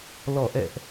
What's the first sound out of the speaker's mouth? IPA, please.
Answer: l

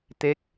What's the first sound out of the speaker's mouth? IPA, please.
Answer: t̪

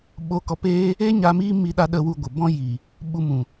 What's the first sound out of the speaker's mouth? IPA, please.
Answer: ɓ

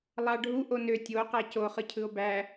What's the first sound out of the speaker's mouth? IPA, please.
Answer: lˠ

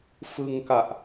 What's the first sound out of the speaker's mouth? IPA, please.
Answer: f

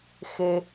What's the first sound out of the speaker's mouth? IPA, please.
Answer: x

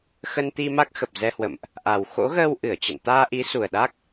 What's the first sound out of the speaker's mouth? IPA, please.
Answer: x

